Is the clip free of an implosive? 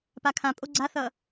yes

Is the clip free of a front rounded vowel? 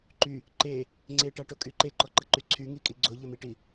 no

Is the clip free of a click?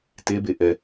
yes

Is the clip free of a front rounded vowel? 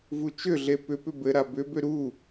no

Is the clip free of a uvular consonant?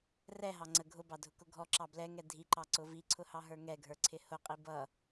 no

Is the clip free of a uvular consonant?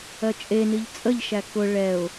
yes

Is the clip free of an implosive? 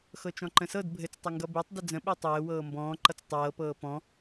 no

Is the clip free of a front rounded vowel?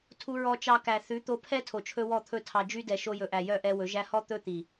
no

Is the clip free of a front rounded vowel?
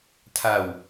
yes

